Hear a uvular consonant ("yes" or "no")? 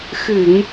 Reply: no